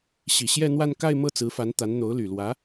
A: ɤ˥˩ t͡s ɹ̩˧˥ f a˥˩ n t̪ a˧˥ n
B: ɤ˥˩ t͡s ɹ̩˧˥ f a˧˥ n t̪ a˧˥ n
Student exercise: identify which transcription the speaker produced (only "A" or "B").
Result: B